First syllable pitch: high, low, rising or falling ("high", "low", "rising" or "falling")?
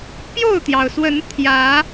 falling